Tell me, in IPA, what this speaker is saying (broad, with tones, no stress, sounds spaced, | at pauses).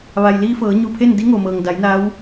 ʋ a˩ j l iː˧ f ɤː˩˧ ɲ u˧˩ pʰ e˥˨ n d i˧˥ ŋ o˩ m ɤː˩ ŋ d a˩˧ j n a˧˥ w